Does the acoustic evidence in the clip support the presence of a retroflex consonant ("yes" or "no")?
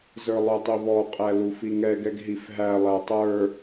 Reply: no